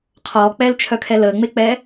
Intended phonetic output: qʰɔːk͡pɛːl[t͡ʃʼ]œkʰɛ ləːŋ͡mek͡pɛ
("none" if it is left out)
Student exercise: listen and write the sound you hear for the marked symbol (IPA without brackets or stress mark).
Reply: t͡ʃʰ